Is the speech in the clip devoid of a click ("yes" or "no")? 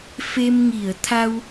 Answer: yes